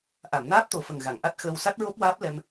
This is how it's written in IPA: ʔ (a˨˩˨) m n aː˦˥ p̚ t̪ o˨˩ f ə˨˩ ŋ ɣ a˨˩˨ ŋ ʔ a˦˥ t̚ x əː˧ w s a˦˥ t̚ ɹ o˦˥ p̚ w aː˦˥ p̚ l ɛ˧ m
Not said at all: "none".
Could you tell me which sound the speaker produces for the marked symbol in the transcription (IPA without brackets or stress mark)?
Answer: a˨˩˨